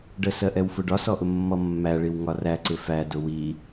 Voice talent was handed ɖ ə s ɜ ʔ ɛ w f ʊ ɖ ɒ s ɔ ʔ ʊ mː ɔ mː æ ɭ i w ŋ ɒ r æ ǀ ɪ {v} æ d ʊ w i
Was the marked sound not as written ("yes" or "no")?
yes